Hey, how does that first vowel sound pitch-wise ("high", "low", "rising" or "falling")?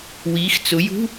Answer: rising